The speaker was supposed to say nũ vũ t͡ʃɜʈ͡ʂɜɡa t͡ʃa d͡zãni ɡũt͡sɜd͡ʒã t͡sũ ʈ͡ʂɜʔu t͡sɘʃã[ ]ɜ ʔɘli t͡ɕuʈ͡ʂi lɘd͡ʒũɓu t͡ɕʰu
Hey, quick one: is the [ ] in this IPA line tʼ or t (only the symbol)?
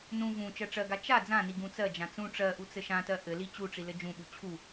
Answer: t